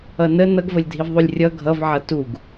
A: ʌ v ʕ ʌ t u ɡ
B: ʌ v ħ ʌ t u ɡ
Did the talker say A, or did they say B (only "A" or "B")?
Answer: A